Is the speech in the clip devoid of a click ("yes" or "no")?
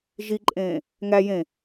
no